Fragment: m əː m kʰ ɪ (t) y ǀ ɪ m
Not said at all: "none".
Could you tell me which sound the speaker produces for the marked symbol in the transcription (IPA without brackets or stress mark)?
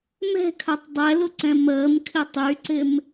tˤ